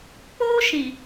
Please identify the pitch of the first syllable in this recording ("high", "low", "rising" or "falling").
high